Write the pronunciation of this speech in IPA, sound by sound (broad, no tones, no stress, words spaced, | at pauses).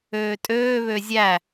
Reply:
øːtʼøːβø zʲæ